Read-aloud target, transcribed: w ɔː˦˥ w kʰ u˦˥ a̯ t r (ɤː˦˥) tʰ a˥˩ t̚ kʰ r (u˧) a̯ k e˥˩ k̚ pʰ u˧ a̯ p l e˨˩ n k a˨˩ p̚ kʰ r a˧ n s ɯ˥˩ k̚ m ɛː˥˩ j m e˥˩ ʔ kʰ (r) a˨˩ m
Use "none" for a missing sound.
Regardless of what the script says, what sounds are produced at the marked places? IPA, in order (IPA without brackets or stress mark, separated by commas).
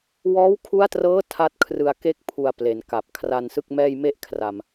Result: ɤː˦˥, ɯ˧, r